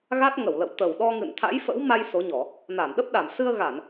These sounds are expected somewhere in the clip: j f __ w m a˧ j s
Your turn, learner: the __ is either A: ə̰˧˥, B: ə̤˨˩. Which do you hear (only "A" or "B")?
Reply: A